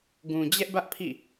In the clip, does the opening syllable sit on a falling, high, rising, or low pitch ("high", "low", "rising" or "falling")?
low